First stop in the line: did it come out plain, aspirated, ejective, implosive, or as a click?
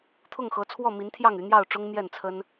aspirated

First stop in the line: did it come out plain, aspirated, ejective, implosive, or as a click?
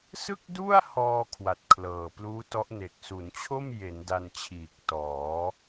plain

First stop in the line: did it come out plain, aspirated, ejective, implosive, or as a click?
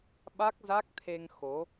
implosive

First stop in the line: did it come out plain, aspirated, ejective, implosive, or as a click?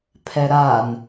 aspirated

